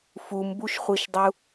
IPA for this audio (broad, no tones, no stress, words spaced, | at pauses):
fumbuʃχʷiʃdˤu